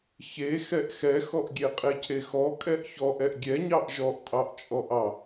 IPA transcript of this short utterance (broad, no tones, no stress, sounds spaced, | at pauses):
ç e x ɛ ʔ x ɛ x ɔ ʔ ɡʲ e qʼ e cʰ e x ɔ kʼ ɛ ʔ ç ɔ ʔ ɛ ʔ ɡʲ ɛ ɲ ɑ ʔ ʒ ɔ ʔ tʼ ɑ ʔ t͡ʃʼ ɔ ʔ ɑ